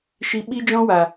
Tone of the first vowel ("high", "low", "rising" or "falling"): high